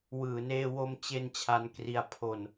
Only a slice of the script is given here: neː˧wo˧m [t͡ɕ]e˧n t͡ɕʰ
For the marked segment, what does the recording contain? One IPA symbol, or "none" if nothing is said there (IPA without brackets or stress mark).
t͡ɕ